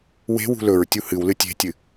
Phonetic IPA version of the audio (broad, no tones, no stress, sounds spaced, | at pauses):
w e̤ w ṳ l ɵ ɹ tʲ u h ɨ w l ɨ tʲ e̤ tʲ ɨ